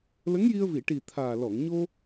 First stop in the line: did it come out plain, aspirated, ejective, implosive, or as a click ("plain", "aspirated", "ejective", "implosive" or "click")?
plain